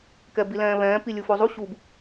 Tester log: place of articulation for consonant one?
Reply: velar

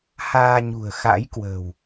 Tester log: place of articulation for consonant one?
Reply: glottal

